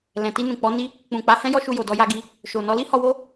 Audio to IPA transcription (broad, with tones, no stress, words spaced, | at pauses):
lɛ̃˨ ti˧nũ˨k͡pɔ˨˦ni˦ | k͡pũ˨k͡pa˨˦hɛ̃˦ jɔ˦ʃu˧jo˨dɔ˧ ja˧ɡi˧ | ʃo˨nɔ˨˦ li˦hɔ˧wo˦